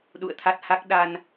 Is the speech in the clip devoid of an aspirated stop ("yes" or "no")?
no